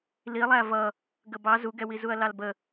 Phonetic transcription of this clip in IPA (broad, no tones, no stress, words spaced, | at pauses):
lilˠæ vʌ | ɡəbɑ zuɡɛwi zuɐ̯lɑlbə